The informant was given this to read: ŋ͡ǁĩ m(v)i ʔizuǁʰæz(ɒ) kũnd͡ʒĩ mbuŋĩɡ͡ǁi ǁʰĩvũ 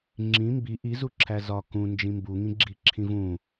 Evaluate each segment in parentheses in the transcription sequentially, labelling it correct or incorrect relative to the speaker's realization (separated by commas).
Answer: incorrect, correct